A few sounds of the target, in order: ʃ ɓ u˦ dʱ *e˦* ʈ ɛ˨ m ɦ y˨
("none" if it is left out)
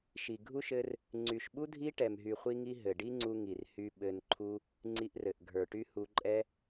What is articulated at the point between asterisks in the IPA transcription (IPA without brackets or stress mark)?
i˦